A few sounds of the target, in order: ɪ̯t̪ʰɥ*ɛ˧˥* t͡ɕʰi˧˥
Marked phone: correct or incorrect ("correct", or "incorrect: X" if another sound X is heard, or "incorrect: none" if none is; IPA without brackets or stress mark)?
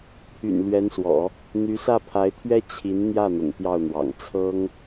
incorrect: ɛ˥